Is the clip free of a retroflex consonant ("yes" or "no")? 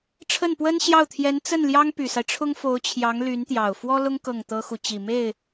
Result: no